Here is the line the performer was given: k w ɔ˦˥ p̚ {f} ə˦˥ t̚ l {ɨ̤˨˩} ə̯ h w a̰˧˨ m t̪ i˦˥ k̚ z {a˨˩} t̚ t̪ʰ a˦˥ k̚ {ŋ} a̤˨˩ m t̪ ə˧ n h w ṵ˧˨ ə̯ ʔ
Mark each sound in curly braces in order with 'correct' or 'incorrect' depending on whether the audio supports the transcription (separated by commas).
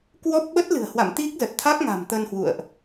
incorrect, correct, incorrect, correct